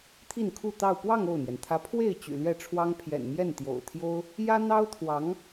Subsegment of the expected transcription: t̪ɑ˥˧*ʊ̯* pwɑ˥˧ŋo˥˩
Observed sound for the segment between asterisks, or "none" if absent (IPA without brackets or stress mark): ʊ̯